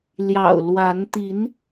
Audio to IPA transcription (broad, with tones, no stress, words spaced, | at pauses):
ljɑ̰˨˩ʊ̯ lwa˨˦n t̪i˨˦n